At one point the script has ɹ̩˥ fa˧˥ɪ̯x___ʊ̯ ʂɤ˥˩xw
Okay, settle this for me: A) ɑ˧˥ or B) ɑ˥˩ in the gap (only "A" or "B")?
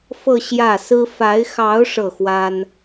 A